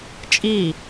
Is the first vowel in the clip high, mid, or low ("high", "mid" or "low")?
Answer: high